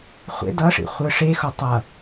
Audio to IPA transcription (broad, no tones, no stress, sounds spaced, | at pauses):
χʷ ḛ d ʌ ʂ ḭ χʷ ɯ ʂ e x o tˤ ʌ